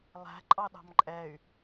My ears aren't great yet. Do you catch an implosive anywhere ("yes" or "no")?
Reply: yes